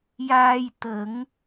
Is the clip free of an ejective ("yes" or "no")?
yes